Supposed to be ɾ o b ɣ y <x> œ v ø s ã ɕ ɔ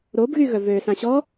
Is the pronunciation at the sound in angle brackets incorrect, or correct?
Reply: incorrect